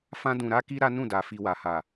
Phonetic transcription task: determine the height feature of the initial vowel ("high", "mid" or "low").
low